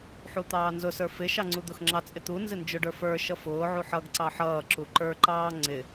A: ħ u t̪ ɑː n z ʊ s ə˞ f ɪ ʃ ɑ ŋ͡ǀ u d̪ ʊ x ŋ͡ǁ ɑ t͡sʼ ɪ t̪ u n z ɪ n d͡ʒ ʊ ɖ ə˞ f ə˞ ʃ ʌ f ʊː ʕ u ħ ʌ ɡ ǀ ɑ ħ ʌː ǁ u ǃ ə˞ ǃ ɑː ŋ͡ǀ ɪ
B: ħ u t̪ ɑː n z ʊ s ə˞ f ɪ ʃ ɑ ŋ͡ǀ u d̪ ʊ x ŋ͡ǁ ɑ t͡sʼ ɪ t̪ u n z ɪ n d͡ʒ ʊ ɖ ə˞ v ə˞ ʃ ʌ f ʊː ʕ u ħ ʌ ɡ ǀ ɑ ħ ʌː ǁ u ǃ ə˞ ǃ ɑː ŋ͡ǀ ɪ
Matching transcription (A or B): A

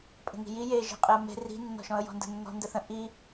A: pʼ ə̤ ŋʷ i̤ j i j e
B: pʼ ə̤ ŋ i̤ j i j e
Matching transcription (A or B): B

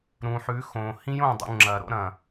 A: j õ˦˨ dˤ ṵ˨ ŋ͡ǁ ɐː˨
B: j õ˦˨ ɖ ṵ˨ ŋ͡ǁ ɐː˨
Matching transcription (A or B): A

